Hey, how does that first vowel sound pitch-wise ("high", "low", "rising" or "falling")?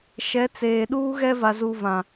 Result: rising